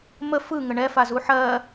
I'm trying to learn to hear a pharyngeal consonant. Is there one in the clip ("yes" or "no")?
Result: yes